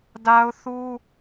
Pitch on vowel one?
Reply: high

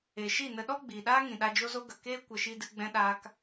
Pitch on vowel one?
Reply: low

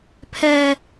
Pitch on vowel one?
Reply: high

